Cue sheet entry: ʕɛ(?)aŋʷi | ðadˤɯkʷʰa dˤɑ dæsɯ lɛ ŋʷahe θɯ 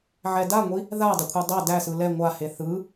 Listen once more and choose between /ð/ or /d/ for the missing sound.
d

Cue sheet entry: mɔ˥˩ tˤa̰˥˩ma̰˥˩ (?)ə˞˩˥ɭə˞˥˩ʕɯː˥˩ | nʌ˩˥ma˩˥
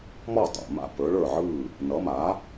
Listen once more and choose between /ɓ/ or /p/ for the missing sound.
p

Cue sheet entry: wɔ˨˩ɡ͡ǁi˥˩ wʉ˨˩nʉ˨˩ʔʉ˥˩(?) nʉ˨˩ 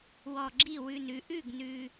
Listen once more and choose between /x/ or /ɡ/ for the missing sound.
ɡ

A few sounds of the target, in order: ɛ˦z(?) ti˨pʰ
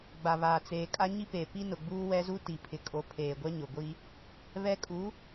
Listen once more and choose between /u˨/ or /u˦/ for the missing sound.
u˦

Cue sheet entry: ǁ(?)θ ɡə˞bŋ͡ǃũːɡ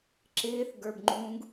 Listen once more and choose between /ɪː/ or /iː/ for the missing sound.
ɪː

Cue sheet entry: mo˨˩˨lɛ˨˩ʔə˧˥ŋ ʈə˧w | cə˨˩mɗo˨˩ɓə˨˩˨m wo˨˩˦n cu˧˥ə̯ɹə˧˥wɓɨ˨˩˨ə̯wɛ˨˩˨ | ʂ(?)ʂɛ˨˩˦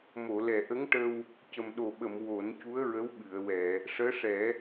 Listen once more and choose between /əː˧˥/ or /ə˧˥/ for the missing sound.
əː˧˥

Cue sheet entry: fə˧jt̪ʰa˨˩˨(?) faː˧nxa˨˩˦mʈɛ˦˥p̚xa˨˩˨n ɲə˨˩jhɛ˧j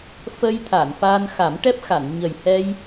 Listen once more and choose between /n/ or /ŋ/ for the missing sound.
n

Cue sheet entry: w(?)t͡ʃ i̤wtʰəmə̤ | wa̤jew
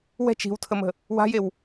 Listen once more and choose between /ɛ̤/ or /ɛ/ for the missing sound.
ɛ̤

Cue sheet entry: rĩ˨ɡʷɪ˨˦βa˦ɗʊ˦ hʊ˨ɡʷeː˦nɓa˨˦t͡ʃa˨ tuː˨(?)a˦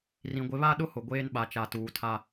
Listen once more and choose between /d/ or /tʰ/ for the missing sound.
tʰ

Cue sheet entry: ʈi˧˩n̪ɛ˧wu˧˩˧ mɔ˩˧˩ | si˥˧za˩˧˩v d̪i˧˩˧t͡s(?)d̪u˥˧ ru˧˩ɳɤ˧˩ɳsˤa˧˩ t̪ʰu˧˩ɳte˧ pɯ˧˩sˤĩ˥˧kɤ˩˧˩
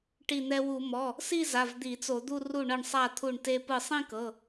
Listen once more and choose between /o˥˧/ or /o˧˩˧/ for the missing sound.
o˧˩˧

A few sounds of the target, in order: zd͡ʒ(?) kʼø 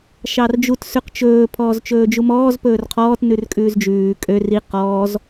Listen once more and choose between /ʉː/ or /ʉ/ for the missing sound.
ʉː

